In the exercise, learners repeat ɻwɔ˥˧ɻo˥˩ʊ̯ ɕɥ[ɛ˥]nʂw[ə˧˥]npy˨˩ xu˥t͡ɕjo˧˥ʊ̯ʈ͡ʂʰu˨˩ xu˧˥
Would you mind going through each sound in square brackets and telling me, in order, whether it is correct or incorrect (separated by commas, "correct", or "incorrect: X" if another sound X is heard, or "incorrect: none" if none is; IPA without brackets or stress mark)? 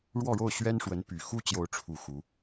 correct, correct